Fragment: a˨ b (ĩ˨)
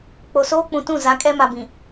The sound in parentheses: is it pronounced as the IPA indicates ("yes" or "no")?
yes